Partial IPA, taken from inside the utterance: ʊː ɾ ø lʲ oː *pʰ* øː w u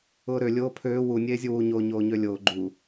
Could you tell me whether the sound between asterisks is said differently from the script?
no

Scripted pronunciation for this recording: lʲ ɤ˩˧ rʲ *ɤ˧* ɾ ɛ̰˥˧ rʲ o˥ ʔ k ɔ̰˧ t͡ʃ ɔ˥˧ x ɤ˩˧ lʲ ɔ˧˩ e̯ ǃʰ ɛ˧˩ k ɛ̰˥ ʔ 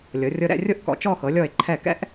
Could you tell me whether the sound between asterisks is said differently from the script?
no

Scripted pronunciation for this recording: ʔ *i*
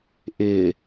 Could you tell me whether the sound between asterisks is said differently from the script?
yes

